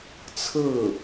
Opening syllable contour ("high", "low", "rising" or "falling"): falling